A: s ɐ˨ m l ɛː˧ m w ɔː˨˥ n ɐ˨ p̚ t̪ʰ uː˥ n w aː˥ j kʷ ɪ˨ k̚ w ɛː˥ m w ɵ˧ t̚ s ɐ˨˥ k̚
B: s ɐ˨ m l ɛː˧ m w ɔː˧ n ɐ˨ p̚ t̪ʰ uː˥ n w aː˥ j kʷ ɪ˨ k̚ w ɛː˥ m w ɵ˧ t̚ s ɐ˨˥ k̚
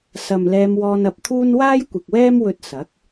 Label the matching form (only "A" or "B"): B